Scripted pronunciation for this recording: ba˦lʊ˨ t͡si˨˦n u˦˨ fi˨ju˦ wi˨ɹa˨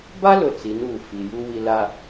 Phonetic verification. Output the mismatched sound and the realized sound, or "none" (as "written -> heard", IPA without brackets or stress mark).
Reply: ɹ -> l